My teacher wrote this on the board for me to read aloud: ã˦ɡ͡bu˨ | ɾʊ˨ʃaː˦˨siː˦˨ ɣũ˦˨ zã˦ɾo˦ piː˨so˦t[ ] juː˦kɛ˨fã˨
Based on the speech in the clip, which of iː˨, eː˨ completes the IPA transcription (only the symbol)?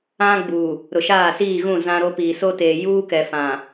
eː˨